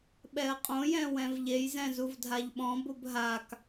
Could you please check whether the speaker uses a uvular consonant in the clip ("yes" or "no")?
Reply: yes